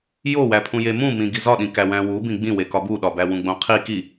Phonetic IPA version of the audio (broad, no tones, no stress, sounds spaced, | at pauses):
j o w æ pʰ ũ j e m ũ m ĩ ɡ i z ɒ ɗ ĩ k æ w æ̃ w u b ĩ ɡ͡b ĩ w e k ɒ b u ɗ ɒ b æ w ũ ɡ͡b õ qʰ i k i